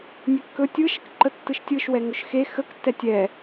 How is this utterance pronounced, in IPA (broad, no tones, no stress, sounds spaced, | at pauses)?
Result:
nʲ ø kː ɵ tʲ ɯ ʃ ə k ǃ ə tː ɯ ʃ tʲ ɯ ʃ w ɛ ŋ ɵ ʃ x e x ə k tː ɛ tʲ ɛ